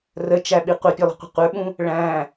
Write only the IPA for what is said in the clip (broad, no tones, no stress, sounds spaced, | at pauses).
r ə t͡ʃ æ ɓ i qʷ ʌ pʲ ʊ lˠ ə̤ qʷ ə̤ qʷ ə˞ ɓ ũ | ɭ æ̃